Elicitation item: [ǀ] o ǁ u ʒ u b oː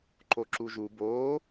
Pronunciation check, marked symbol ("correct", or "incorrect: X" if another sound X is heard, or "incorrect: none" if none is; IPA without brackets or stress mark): incorrect: ǃ